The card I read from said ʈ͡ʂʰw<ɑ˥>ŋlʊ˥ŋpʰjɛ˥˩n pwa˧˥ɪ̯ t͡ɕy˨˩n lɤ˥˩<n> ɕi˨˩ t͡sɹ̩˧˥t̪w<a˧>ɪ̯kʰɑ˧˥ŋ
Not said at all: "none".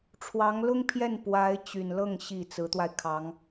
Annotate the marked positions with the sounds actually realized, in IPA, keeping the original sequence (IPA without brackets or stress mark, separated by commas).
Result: ɑ˧˥, ŋ, a˧